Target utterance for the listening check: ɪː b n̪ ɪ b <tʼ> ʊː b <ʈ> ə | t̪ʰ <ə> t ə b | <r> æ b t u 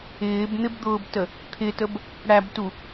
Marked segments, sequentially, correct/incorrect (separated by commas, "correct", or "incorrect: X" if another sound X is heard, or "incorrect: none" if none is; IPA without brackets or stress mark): incorrect: d̪, incorrect: t, incorrect: ɪ, incorrect: ɽ